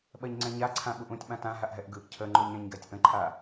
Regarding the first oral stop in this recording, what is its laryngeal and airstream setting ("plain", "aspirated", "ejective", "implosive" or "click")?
implosive